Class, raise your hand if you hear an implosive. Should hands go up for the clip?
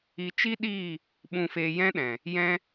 yes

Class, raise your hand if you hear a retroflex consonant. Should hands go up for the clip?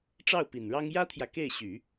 yes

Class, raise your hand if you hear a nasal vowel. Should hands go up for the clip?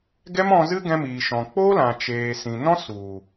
yes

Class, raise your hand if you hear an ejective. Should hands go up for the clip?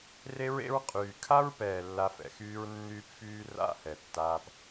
yes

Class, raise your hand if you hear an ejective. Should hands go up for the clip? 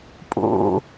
yes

